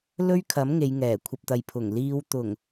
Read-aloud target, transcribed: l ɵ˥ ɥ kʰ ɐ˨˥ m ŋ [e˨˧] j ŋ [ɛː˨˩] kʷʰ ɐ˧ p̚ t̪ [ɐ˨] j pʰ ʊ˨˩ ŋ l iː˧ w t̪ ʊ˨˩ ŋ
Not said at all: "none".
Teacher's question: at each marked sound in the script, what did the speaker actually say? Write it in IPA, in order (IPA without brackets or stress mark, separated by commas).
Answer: e˨˧, ɛː˨˩, ɐ˨